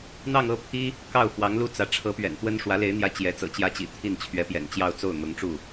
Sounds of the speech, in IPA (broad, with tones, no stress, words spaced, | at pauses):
n̪ɑ˥˧ŋɤ˥˩pʰi˥ | kɑ˥˩ʊ̯fwɑ˧˥ŋlu˥˩t͡sä˧˥ ʈ͡ʂʰɤ˧˥pɥɛ̰˨˩nt̪wə˥n ʂwä˧˥le˧˥ɪ̯n̪jä˧˥ t͡ɕjɛ˧˥ t͡sɤ̰˨˩t͡ɕjä˥t͡ɕḭ˨˩ t̪ʰi˥˩nt͡ɕʰɥɛ˧˥pjɛ̰˨˩n t͡ɕjɑ˥˧ʊ̯t͡so˥˩ʊ̯ n̪ʊ˧˥ŋʈ͡ʂu˥˩